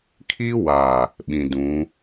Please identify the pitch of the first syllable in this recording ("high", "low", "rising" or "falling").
high